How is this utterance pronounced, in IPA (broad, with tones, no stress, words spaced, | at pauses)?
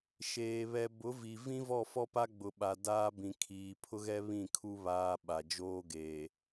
ʃeː˨ βɛ˨bʊ˨˦vi˨ vĩ˦vɔ˦˨fɔ˦pa˦ ɡ͡bʊ˨ɓa˨daː˦bĩ˨ kʰiː˨pʰʊ˦ɣɛ˦ βĩ˦˨kʰu˦ βaː˦ ɓa˨d͡ʒoː˦ ɡeː˨